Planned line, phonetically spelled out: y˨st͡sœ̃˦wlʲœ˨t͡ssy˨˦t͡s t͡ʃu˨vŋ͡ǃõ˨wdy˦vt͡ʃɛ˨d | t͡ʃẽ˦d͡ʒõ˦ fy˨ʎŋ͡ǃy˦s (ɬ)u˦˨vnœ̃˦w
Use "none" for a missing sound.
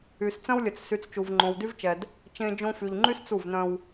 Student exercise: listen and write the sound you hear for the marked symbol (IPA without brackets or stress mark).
t͡s